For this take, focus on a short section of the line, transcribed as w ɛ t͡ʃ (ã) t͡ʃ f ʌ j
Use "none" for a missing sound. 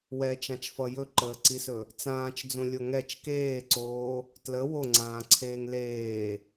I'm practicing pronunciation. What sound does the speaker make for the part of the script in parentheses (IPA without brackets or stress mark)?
ã